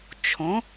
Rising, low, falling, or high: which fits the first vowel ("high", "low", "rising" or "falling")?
rising